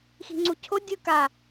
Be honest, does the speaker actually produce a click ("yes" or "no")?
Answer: yes